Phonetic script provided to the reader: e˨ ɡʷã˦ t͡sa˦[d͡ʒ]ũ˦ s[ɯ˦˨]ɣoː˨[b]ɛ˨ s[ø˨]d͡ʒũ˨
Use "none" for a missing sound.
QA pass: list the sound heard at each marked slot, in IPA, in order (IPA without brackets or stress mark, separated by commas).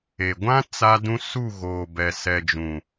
d, u˦˨, b, ɛ˨